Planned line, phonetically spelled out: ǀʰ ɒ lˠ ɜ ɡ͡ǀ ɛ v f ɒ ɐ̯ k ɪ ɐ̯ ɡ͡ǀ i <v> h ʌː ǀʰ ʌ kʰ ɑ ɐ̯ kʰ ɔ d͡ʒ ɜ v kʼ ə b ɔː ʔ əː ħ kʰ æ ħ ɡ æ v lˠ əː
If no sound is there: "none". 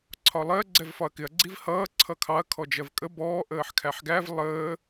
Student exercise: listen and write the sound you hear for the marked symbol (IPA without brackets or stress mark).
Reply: v